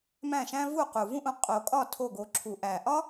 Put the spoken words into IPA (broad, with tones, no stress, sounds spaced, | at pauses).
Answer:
m æ̃˥˩ ʃ æ̃˥ v u˥˩ q u˨˩ v ũ˥ ʔ ũ˧ qʼ o˨˩˦ kʼ ɒ˥˩ tʰ o˥˩ ɡ o˧ ǁʰ u˨˩˦ ʔ æ˨˩ ʔ ɒ˥